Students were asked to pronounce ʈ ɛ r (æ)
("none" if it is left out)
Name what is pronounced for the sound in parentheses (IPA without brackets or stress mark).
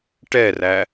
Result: æ